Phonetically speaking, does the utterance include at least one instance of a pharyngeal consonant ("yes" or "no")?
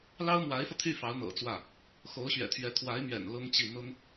no